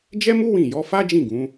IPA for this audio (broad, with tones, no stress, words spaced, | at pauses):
d͡ʒɛ˦mu˦ wĩ˦˨ jɔ˨˦fa˦d͡ʒĩ˦˨ ɡũ˨˦